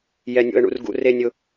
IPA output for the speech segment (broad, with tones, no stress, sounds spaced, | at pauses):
j ɛ˧ nʲ o̰˧ ə̯ ɳ ṵ˧ r ɡ ṵ˧ r e˧ nʲ ʊ˧